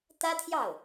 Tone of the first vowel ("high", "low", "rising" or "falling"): high